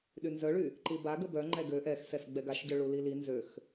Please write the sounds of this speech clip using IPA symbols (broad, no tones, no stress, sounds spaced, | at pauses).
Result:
ɗ y n z œ ɭ y | ǃ i b a ɡ ə b œ ŋ͡ǃ ɛ ɡ ø ʔ ɛ x s ɛ s ɡ͡b ɛ ɡ a ʃ ɟ œ ɭ u l i l i n z ø x